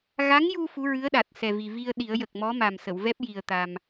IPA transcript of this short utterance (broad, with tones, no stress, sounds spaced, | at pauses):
ɣ a˧˥ ŋ j u˧ f u˧˥ ɹ ɨ˧˥ ə̯ ɗ a˨˩ t̚ s ɛ˨˩ v i˨˩ v i˧ ə̯ ɗ i˨˩˦ ə̯ j ə˨˩ k̚ m ɔ˧˥ m a˨˩ m s ə˨˩˨ w v ɛ˦˥ p̚ j i˨˩ ə̯ t̪ a˧ m